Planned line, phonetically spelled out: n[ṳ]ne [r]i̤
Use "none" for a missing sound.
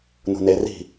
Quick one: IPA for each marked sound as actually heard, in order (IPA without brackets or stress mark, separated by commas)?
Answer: ṳ, r